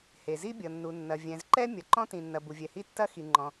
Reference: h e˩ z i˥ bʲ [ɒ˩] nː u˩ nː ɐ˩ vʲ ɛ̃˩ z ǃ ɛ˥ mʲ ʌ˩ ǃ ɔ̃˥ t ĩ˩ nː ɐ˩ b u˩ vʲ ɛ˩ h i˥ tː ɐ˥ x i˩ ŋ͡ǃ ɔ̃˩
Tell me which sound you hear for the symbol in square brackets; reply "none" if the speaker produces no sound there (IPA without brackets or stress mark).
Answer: ʌ˩